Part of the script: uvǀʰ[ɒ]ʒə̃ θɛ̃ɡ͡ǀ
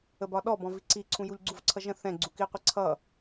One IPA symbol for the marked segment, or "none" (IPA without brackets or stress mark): ʌ